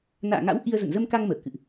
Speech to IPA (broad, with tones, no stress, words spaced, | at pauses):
na̰ː˧˨ŋa̰˧˥w ʔi˧ə̯ zə̰˧˨nzə˧mka˧ŋ məː˧˩kɨ̰˧˨ʔ